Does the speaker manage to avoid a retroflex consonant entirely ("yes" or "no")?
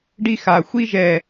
no